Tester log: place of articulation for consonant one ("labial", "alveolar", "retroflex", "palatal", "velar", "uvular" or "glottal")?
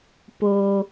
labial